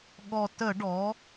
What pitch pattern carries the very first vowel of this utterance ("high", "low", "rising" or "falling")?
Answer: low